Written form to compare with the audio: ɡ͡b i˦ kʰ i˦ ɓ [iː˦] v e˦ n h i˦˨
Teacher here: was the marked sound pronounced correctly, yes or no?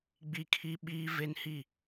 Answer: yes